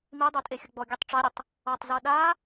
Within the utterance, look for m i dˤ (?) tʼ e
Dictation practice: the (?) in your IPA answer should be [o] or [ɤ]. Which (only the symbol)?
o